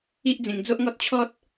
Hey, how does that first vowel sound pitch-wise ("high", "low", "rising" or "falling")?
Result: high